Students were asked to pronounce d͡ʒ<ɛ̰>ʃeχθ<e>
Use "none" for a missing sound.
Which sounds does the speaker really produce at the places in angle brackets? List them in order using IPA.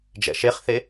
ɛ̰, e

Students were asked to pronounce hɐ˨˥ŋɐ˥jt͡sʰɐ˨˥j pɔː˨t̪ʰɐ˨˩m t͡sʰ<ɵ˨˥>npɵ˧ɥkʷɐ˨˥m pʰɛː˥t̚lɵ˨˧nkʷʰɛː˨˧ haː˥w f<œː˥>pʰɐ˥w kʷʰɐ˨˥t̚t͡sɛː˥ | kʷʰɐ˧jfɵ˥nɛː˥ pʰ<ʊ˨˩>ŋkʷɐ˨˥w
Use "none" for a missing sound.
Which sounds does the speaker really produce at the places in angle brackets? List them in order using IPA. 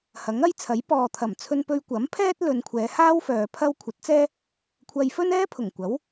ɵ˧, œː˧, ʊ˨˩

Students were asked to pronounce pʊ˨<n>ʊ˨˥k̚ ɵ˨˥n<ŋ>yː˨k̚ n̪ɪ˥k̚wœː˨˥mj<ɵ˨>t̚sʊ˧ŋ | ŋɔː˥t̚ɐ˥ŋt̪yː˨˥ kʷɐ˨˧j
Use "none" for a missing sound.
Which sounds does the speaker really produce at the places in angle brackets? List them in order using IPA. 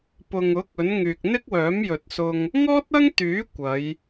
ŋ, ŋ, ɵ˨

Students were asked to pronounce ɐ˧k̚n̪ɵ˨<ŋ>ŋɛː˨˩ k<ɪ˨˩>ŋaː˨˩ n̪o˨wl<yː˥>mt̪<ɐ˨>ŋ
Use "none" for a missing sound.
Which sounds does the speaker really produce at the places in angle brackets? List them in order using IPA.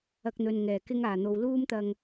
n, ɪ˧, uː˥, ɐ˧

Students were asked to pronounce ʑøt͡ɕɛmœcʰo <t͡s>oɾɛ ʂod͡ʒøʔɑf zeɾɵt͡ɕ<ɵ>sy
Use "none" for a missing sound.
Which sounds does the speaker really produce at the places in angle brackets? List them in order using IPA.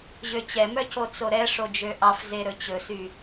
t͡s, ɵ

